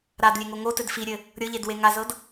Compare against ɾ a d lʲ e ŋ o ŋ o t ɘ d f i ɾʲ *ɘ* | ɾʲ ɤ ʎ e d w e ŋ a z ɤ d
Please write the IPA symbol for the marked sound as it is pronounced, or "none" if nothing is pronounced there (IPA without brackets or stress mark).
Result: ɘ